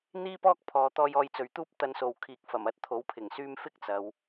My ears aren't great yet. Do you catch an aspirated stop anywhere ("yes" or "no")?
yes